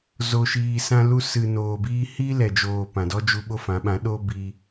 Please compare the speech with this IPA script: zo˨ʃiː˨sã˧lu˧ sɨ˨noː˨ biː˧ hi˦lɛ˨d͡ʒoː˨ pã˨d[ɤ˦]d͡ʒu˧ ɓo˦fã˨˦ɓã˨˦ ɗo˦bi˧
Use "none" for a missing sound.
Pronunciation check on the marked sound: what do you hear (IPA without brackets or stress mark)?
ɔ˦